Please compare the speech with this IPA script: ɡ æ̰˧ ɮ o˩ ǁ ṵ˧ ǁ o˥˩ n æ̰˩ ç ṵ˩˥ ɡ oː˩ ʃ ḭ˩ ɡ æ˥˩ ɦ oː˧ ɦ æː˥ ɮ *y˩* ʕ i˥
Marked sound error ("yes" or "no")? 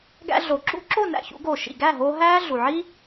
yes